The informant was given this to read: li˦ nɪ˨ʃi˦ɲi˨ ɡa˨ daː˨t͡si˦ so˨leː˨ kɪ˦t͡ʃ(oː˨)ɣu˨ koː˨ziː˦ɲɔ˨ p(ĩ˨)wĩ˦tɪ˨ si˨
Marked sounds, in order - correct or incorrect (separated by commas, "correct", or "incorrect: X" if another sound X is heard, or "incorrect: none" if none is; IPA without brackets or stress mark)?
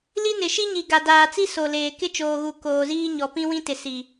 correct, incorrect: ĩ˦